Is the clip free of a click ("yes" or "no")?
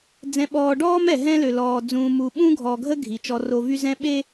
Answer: yes